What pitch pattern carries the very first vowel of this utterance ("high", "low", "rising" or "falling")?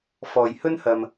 low